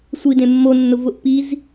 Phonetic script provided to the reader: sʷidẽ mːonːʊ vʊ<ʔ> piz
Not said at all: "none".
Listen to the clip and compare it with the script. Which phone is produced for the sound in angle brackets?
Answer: ʔ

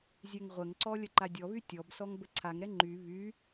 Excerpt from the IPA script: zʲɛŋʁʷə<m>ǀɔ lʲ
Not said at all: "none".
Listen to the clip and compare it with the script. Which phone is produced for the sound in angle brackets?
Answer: ŋ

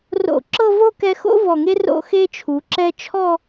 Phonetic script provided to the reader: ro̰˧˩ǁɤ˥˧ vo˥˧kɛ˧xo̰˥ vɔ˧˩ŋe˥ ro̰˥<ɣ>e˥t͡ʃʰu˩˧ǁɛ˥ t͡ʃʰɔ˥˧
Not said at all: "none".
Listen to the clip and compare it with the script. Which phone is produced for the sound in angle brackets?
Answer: x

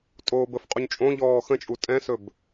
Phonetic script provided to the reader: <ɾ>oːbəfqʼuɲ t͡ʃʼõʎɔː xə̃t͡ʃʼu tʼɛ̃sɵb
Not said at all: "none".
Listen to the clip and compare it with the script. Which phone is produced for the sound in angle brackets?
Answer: tʼ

